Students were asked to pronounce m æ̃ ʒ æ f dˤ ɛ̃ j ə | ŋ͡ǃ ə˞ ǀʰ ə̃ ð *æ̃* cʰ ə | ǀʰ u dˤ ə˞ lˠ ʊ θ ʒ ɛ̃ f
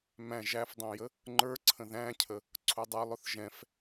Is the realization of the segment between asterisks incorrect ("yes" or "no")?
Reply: no